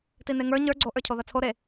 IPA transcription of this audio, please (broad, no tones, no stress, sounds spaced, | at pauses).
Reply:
t i n e ŋ ə˞ ɲ ə˞ ɡ͡ǀ o ʔ ə˞ cʰ o ð ɐ t͡sʰ o ɾ e